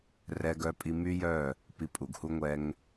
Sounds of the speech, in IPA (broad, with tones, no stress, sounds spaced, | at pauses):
r ɛ˦ ɡ œ˦ pʼ i˦ m y˦ j œ˦˨ | p i˧ pʼ u˨ ɡ h u˦ ŋʷ ɛ˦ ŋ